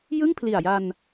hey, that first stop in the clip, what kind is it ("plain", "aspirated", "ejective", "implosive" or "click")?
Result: aspirated